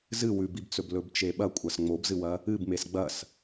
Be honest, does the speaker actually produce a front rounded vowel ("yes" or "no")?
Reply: no